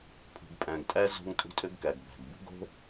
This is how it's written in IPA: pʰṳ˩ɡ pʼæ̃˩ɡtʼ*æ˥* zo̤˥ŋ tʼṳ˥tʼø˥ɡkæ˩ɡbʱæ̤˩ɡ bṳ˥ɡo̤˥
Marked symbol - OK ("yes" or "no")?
yes